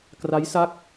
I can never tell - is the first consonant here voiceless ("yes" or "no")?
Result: yes